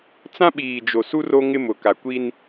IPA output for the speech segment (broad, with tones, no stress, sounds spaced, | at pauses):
t͡s ã˦ ɓ iː˨ d͡ʒ o˨ s u˦ r o˦ ŋ ɪ˦ m ʊ˨ k a˨ kʷ i˦ n